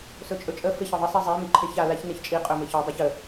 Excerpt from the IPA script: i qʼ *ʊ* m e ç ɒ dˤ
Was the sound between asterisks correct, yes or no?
no